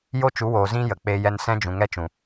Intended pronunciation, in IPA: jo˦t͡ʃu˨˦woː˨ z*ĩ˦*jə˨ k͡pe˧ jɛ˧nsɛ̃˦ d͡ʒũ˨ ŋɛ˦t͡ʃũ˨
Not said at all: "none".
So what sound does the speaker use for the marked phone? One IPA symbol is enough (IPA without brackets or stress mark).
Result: ĩ˦